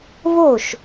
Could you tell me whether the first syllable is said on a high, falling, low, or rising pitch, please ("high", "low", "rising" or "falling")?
falling